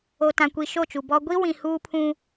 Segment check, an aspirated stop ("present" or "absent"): present